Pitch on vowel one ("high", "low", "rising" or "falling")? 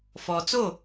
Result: low